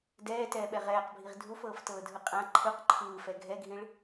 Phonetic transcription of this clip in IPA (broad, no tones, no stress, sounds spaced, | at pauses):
d ɛː t ɛː ɓ ɛ ʁ ɛː q bʱ i ʁ dʱ u f ɤː f t ɤː dʱ ɯ qʼ ã ǃʰ ɯ q ǃʰ ɯː f ɛ ɡʱ ɛ ɡʱ ĩ ɭ